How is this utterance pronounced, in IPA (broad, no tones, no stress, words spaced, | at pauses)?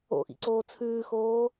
o̰ʔḭǀoː t͡sʰʉːxoː